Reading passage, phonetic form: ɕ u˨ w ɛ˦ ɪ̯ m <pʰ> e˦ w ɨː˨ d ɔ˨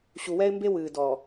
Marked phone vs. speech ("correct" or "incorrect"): incorrect